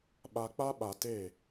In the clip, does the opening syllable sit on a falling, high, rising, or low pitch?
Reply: low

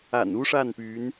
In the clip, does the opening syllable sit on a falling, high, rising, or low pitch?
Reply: low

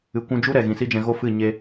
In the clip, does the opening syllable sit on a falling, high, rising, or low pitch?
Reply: low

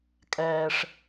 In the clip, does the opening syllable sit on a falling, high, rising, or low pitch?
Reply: high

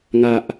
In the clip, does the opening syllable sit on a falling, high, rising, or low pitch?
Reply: low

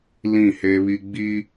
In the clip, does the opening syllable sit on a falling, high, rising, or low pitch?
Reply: falling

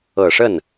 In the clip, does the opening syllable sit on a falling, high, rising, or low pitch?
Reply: low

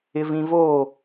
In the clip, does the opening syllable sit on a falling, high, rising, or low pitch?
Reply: low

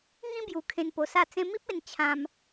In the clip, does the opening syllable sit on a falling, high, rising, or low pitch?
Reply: high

